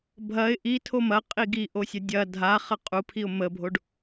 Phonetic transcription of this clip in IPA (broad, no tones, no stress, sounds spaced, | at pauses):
bʱ ɐ ɪ̯ ʔ i tʰ o m ɐ qʼ i ɡ i ʔ o sʲ ɐ dʲ ɐ dʱ a χ ɐ qʼ u pʰ i ʊ̯ m ə bʱ o ɖ